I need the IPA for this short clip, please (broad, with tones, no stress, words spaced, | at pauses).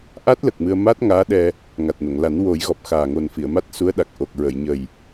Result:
ʔa˦˥t̚lə˨˩k̚ mɨ˧ə̯ ma˦˥t̚ŋaː˧˥ ɗɛ˧ | ŋa˨˩t̚no˨˩˨ŋla˨˩˦n wo˨˩˦jɣɔ˨˩p̚ xaː˨˩ŋo˨˩nfi˨˩˨ə̯ ma˦˥t̚su˧˥ə̯ɗa˨˩k̚ ʔo˨˩k̚ ɹə˨˩˨jɲə˨˩j